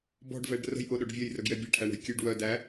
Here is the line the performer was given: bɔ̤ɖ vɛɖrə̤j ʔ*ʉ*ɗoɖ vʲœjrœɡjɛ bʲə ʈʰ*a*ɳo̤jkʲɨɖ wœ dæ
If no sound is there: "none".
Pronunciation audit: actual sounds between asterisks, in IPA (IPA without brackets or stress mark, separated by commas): ʊ, æ